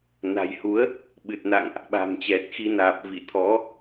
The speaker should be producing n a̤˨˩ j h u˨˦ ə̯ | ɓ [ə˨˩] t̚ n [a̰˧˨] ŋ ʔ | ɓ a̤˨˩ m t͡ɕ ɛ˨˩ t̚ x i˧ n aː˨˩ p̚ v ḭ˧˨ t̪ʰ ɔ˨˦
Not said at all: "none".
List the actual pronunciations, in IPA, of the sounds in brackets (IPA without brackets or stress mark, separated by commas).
ɨ˨˩, a̰˧˨